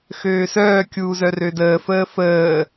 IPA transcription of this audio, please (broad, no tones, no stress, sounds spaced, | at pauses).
x øː s œː kʲ uː z œ r ø d əː f əː f əː